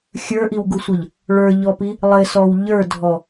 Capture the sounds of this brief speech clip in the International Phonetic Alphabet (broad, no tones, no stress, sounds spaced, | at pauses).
xʲ ə˞ ʔ i w ɡ u sʷ ʌ ʎ | ɭ ə˞ ʎ ɔ p i | lˠ ɪ s ɔ w ʎ ə˞ dʱ ɔ